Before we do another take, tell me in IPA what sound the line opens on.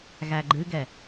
ɣ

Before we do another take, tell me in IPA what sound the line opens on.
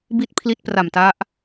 b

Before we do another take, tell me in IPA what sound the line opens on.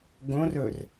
ɡ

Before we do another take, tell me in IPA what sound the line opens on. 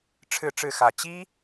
ʈ͡ʂʰ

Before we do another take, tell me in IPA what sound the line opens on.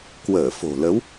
k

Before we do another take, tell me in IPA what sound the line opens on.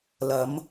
l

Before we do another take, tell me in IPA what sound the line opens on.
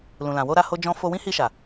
l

